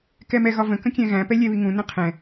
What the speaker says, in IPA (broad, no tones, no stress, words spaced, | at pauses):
kɛmɛɣɒvə̃ kə̃kʲɛ̃ɣæ̃ pɛlʲɛβiŋũ nə̃qʰɛ̃